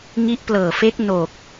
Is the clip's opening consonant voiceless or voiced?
voiced